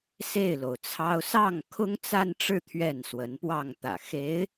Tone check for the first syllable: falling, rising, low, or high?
falling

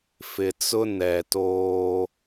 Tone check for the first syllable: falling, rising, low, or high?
low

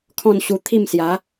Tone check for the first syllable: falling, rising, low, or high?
falling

